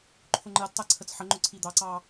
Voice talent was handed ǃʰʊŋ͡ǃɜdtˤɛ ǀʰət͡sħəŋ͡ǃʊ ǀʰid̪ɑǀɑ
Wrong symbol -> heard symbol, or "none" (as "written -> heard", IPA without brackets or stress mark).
none